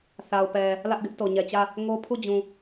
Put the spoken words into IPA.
θa˨ʊ̯pɛ˨ | lä˦ʔɡɪ˦ʔ to˨ɲɛ˨t͡ɕä˦˨ | ŋo˦pʰu˦˨d͡ʑũ˨

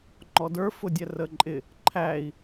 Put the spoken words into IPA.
ŋ͡ǃɔdə˞ fʊdʲɛrəǃʼɪ | ǃʰæi̯

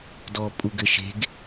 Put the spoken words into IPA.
dɔ pʼuɡɘʃe̤ɡ

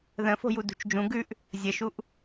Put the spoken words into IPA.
ðə̃fo̤ju dṳt͡ʃd͡ʒũ ɡʉʔ | zʲəʃuʔ

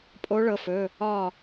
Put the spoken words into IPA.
pʼo˧˥ɭɤ˩˧˩fɵ˩˧˩ | ɒ˥˨

